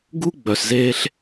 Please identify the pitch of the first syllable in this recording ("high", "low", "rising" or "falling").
high